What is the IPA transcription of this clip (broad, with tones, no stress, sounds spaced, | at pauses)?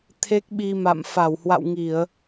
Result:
t̪ʰ e˦˥ k̚ ɓ i˧ m a̰˧˨ m f a˧˩ w h w a̰˧˨ w ŋ i˧˩˨ ə̯